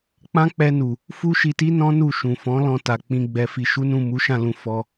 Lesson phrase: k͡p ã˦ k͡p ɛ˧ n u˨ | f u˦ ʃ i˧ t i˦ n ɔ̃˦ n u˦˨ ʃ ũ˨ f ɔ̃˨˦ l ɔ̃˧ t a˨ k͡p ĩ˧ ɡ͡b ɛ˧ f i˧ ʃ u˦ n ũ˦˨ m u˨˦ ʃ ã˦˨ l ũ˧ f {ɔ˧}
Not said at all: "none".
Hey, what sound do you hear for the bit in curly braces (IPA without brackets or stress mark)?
ɔ˧